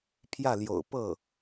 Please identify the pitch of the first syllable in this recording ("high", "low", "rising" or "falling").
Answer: falling